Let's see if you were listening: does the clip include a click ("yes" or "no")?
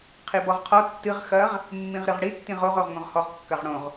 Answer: no